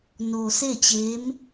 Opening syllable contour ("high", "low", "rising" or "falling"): low